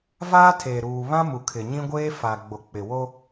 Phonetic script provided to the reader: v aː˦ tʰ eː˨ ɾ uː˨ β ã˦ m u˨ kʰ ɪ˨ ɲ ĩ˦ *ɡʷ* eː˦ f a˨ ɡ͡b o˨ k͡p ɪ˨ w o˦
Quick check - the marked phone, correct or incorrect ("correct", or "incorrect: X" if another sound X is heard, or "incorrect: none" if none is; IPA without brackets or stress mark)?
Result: correct